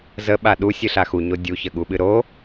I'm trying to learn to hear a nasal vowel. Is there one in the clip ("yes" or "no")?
no